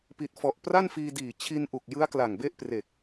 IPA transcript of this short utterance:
p i˨˩ t̚ f ɔ˨˩ ʔ p r a˥˩ n f iː˧ d iː˨˩ t͡ɕʰ i˧ n ʔ u˨˩ k̚ j ɯ˦˥ a̯ k l a˨˩ ŋ b e˦˥ ʔ p r e˨˩ k̚

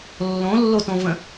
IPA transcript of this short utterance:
lː õ lː o t õ v ə̃

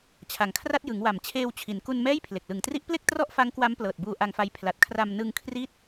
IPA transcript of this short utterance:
t͡ɕʰ a˩˦ ŋ kʰ r a˥˩ t̚ j ɯ˩˦ ŋ w a˨˩ m t͡ɕʰ eː˧ w t͡ɕʰ i˩˦ n k u˧ n m ɛː˥˩ j pʰ l e˨˩ k̚ l ɯ˨˩ ŋ t r i˦˥ ʔ p l e˥˩ k̚ t r ɔ˥˩ ʔ f a˦˥ ŋ k w a˦˥ m p l ɤː˨˩ t̚ b uː˧ ʔ a˧ ŋ f a˦˥ j pʰ l a˨˩ t̚ kʰ r a˧ m n ɯ˧ ŋ kʰ r i˦˥ t̚

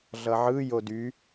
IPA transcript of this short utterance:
ɮ ʌ ʕ ɯ j o d y

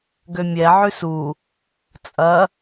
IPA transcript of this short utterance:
ɡ ø mʲ ɛ ʕ ʉ s u | t͡sʼ ɐ

